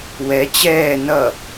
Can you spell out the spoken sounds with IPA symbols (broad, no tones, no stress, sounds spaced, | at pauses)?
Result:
w ɛ t͡ɕ ɛː n ʌ